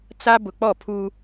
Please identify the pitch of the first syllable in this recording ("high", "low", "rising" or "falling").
high